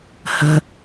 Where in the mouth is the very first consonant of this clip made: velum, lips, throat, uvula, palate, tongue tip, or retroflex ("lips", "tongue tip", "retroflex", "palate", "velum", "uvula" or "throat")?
throat